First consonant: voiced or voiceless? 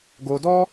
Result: voiced